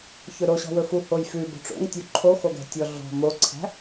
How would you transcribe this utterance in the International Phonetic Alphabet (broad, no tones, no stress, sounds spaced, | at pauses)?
ç ɵ ɾ o ɕ ɔ̤ w ɵ f u h o j f ʉ b o̤ ʈ͡ʂ o̰ ŋ tʲ u ǃʰ o x o ɡ æ̤ tʲ ɔ ɮ ɔ̤ m o ǀʰ æ̤